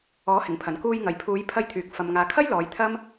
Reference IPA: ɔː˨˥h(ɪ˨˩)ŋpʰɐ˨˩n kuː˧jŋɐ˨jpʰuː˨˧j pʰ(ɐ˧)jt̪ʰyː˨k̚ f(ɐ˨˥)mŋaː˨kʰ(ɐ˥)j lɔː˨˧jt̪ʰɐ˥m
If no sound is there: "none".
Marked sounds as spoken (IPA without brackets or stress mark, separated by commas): ɪ˨˩, ɐ˧, ɐ˨, ɐ˥